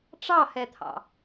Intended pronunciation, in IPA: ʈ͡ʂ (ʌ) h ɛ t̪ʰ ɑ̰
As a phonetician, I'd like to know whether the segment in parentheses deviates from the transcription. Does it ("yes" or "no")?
yes